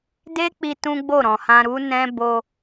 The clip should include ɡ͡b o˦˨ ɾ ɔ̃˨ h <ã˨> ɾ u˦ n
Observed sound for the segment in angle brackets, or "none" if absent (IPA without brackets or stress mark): ã˧